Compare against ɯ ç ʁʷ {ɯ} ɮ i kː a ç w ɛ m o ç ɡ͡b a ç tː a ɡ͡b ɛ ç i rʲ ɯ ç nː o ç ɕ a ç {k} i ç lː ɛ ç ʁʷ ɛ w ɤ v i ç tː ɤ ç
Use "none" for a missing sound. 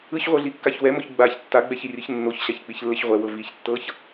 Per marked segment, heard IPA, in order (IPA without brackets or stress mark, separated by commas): ɤ, k͡p